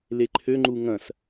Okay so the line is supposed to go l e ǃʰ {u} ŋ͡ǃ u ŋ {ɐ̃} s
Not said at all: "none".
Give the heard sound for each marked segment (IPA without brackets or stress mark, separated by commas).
ø, ɐ̃